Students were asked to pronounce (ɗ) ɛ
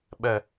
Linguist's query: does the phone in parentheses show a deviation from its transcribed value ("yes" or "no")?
yes